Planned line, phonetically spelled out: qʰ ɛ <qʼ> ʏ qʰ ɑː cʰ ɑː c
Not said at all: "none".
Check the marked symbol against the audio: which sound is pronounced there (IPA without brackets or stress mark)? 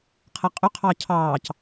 qʼ